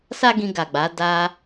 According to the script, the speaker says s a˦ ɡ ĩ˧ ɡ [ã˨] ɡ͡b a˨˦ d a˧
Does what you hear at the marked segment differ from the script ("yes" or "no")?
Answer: yes